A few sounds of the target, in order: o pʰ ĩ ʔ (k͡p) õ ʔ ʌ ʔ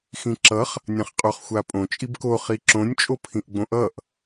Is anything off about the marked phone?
yes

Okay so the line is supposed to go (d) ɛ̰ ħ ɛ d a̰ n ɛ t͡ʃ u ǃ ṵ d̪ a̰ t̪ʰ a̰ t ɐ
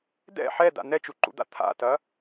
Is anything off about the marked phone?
no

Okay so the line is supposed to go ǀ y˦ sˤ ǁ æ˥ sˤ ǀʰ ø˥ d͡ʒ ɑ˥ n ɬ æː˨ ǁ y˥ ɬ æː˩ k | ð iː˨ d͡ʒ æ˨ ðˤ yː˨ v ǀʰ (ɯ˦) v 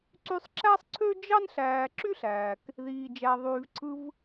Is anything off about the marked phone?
no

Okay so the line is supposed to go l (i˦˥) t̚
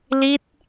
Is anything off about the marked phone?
no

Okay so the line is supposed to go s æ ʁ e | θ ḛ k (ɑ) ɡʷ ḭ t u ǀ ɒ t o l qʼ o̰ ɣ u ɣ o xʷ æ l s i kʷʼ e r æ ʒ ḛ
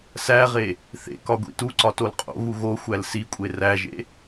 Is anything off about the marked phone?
yes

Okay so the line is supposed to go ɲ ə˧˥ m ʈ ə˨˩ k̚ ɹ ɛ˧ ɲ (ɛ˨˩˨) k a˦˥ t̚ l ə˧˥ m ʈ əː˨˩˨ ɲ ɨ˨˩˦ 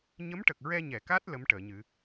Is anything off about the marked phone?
no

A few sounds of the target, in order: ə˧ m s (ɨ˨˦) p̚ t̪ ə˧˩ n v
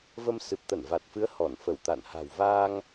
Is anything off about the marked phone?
yes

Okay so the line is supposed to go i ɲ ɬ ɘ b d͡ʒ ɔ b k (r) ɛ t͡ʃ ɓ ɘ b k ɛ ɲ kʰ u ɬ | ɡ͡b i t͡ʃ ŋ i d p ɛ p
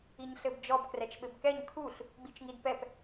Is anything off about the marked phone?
no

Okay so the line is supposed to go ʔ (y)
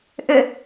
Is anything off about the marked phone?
yes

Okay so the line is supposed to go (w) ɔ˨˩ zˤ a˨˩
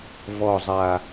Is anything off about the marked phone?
yes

